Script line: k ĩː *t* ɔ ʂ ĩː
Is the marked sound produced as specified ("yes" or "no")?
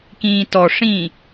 yes